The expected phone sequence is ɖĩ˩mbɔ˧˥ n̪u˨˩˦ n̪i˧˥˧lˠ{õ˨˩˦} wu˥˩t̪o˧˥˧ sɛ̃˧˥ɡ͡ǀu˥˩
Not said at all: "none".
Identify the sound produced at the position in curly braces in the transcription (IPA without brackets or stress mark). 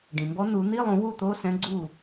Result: ũ˨˩˦